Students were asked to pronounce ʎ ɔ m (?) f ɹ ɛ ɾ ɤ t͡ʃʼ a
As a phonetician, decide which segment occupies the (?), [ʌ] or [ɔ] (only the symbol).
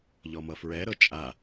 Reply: ʌ